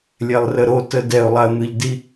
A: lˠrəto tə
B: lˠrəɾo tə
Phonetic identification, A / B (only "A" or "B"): B